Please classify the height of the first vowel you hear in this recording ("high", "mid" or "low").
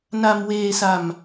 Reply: low